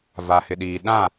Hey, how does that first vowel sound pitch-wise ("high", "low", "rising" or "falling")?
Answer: low